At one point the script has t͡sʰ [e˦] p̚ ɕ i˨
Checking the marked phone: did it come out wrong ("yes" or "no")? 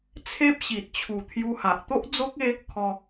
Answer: no